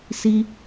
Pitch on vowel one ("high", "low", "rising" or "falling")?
high